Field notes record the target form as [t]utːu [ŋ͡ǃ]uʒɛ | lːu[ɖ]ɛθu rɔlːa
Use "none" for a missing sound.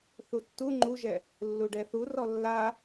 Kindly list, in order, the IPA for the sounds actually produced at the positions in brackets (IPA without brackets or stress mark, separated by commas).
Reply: θ, ŋ͡ǃ, ɖ